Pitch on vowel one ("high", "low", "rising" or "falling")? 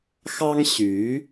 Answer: high